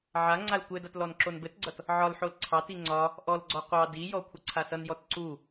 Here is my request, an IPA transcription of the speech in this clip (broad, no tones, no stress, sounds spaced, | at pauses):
ʕ a ŋ͡ǀ a l kʷ ɘ d a t l ɔ n ǁ o n b ɘ t ɡ͡ǀ ʌ t | ʕ ɒ l ħ o l ǀʰ ɑ t i ŋ͡ǀ ɒ | ʔ ɔ l ɡ͡ǀ ɔ qʷ ɑ d i j ɔ kʷʰ ʌ ǀʰ a s ʌ n j ɔ t ǀ u